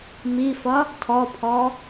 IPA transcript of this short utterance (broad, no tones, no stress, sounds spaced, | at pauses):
m i f ʌ | tʰ ɔ pʰ ɔ